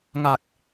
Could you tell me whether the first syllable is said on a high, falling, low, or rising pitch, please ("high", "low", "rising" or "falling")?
low